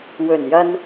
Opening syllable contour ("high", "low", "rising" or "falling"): low